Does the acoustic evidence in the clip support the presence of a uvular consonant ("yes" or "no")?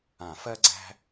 no